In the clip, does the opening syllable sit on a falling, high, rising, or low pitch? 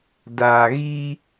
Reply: low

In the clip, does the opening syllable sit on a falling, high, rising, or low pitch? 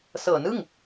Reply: low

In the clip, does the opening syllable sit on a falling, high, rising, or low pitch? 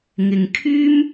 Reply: low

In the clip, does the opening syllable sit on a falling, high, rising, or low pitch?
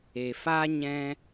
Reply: low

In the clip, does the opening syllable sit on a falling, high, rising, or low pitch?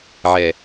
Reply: low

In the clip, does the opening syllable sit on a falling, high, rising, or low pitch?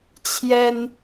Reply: high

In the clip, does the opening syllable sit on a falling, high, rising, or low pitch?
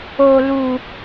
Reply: low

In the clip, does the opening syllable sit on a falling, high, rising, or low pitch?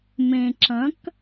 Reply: low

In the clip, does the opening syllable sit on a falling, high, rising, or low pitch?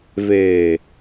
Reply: low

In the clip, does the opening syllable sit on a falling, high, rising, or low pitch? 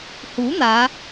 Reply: rising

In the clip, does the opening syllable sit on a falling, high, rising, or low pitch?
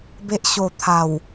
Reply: low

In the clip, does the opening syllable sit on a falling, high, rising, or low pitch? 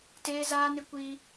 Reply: high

